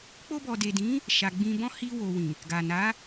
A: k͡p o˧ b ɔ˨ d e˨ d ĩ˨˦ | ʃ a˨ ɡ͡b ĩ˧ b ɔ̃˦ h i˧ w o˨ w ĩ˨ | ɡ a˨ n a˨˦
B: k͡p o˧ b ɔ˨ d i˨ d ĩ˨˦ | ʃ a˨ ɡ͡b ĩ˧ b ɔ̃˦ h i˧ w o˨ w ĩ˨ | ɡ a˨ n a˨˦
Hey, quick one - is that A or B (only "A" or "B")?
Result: A